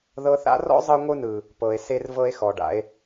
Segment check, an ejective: absent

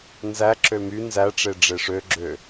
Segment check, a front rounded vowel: present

